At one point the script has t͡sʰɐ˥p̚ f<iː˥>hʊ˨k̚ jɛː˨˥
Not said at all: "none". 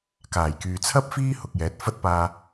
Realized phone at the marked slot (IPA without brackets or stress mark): iː˥